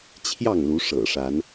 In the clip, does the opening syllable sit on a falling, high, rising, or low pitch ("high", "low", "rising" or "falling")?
falling